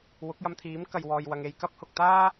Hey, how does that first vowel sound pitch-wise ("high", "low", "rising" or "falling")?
rising